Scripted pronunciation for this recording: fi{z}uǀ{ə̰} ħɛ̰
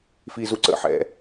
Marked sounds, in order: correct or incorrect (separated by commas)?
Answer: correct, correct